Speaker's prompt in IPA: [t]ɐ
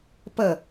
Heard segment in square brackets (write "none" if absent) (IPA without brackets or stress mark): p